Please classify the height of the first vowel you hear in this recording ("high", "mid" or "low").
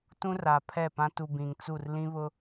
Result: high